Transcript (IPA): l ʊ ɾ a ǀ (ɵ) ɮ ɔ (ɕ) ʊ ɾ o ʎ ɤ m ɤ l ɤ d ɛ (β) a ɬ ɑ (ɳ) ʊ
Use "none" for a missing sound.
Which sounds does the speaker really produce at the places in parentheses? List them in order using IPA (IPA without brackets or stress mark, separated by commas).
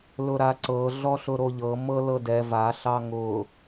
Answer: ɤ, ɬ, v, ŋ